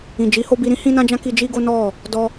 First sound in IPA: ĩ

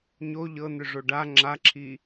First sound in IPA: ɲ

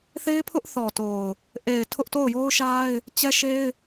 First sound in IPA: θ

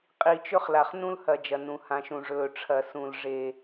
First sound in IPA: qʼ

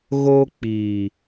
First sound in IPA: ɣ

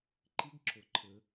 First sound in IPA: ǃ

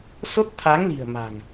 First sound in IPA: s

